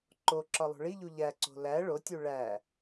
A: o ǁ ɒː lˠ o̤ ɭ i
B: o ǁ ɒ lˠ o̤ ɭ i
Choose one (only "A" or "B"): B